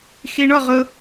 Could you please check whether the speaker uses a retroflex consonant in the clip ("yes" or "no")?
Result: yes